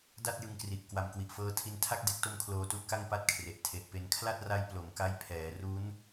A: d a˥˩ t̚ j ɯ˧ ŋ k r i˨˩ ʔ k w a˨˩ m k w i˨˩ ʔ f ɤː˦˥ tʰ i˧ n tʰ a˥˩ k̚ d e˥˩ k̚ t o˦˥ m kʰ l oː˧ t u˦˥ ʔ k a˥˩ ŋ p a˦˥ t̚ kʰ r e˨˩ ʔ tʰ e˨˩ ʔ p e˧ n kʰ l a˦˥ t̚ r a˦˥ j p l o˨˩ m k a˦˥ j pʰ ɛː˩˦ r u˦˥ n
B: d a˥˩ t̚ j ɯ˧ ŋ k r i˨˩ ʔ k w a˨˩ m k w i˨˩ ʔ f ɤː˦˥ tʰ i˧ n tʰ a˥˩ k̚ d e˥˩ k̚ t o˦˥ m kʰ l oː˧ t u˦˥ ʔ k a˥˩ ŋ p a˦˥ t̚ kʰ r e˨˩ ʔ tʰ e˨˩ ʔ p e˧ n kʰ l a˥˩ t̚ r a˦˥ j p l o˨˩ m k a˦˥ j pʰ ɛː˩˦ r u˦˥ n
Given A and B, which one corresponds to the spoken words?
B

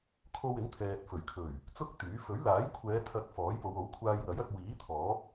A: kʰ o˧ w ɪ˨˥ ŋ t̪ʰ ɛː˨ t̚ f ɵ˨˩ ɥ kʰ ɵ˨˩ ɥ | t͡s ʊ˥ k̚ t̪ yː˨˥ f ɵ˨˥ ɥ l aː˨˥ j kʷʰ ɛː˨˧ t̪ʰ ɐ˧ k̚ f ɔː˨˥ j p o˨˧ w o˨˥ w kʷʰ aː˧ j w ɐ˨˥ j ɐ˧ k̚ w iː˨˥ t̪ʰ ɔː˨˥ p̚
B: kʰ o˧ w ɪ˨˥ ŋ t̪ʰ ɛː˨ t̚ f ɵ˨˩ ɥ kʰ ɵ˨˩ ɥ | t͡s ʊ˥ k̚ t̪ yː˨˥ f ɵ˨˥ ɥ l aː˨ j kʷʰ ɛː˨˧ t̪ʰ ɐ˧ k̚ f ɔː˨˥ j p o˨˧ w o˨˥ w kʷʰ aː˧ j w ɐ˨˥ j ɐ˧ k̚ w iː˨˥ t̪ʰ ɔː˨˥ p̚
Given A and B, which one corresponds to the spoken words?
A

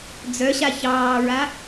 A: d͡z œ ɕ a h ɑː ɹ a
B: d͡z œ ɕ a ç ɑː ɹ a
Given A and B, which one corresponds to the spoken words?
B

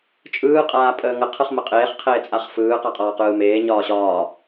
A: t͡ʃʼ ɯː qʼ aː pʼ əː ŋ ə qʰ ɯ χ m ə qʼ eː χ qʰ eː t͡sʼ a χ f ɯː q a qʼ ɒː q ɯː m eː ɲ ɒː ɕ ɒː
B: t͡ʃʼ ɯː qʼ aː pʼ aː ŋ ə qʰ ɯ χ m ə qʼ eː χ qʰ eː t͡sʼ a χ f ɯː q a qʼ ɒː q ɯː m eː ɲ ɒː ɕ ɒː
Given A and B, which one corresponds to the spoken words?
A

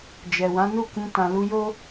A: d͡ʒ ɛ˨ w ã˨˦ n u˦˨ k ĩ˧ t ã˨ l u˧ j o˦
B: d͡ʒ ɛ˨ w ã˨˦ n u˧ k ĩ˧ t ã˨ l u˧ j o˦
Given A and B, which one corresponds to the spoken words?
A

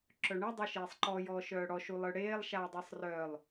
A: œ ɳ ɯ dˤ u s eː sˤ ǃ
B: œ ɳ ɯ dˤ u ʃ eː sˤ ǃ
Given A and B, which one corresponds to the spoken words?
B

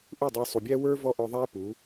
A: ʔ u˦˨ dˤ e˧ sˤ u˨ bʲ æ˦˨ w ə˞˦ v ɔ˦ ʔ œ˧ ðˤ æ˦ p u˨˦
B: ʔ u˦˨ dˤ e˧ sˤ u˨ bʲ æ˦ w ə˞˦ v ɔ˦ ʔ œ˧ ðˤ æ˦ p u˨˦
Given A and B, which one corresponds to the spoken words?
B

